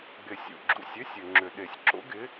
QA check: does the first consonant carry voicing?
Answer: yes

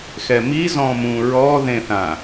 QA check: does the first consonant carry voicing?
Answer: no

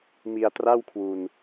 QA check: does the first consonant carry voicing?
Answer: yes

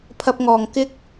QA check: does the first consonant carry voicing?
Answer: no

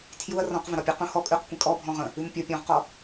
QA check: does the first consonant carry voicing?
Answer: no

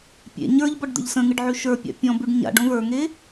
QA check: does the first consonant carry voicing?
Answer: no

